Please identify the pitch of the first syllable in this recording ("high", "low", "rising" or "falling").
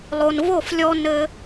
low